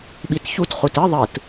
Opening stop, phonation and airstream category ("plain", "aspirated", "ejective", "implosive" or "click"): implosive